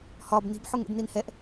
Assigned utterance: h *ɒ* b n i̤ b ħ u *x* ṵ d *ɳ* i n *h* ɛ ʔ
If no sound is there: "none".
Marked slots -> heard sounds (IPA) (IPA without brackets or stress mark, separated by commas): ɒ, ŋ, n, h